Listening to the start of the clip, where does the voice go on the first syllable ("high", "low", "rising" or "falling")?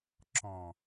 low